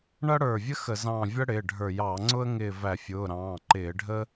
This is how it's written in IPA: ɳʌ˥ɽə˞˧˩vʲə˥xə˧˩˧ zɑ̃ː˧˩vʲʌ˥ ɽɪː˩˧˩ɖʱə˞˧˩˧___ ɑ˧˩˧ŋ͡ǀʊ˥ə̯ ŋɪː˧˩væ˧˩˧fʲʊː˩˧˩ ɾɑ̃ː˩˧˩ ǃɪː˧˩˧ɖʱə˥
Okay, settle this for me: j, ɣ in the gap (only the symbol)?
j